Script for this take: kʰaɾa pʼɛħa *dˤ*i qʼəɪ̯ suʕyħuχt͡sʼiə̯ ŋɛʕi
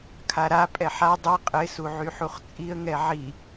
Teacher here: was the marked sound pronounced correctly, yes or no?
yes